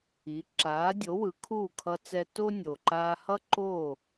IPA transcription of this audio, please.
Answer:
i˩˥ ǁ aː˩˥ dʲ o˩˥ w ɯ˩˥ kʰ uː˥˩ kʰ ʌ˧ t͡s ɛ˧ t o˥ nʲ o˩ ǃ aː˧ h ʌ˥ ǃ o˥˩

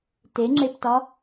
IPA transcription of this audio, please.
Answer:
t e ŋ͡ǁ e p t ɒ

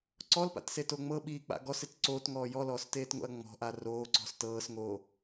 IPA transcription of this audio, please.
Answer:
ǀ ɔ l p a̰ t s e t o ŋ͡m ɤ ɓ iː k͡p a̰ ɡ ɔ s ɪ t ǀ oː t ŋ ɔː j ɔ l ɔː s t eː t ŋ o̰ ɐ̯ ŋ͡m ɔ̤ ʔ a r oː ǀ ɔ̤ s t ɤː s ŋ oː

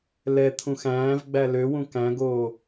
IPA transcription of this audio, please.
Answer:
l ɛ t̪ʰ ũ x æ̃ː v ɡ͡b æ l ø w ũ k æ̃ ɡ oː

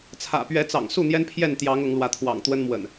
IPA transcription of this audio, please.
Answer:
t͡sʰ ä̰˨˩ p ɥ ɛ˨˦ t͡s ɑ̰˨˩ ŋ s u˥˨ n̪ j ɛ˦ n pʰ j ɛ˥˨ n t̪ j ɑ˨˦ ŋ ʊ˨˦ ŋ l w ä˨˦ t̪ʰ w ɑ̰˨˩ ŋ t̪ w ə˦ n m w ə̰˨˩ n

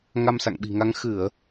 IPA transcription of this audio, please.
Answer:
ŋ a˧ m s a̰˧˨ ŋ ɓ i̤˨˩ ŋ a˧ ŋ x ɨ˧˩˨ ə̯

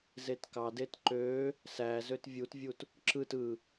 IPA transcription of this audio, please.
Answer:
z e t k ɑ d e t ǃ ø | s æ z ø t vʲ u t vʲ u t | ǁ ɯ t ɯ

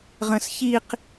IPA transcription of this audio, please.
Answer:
ʁ ə̃ s ç i q

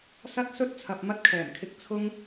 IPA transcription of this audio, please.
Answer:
s ɐ˥ t̚ s ɵ˥ t̚ t͡sʰ ɐ˨ p̚ m ɐ˥ t̚ kʰ ɛː˨˩ m kʰ ɪ˧ k̚ t͡sʰ ʊ˥ ŋ

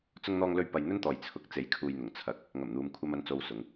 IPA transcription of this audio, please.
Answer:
t͡s ʊ˧ ŋ n̪ ɔː˧ ŋ l ɵ˧ ɥ p ɐ˧ j n̪ ɵ˥ n t̪ ɔː˨ j t͡sʰ ʊ˨˥ k̚ t͡s e˨˥ j kʰ uː˨ j n̪ ʊ˨˩ ŋ t͡sʰ ɐ˨ k̚ | ŋ ɐ˨˩ m n̪ uː˨ m kʷʰ ɐ˧ m ɐ˧ n t͡s o˧ w s ʊ˨˧ ŋ

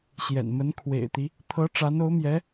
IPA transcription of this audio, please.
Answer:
ɕ j ɛ̰˨˩ n m ə˧˥ n kʰ w ḛ˨˩ ɪ̯ t̪ i˦ | t̪ʰ ɤ˧˥ ʈ͡ʂ a˧˥ n o˧˥ ʊ̯ m j ɛ˧˥

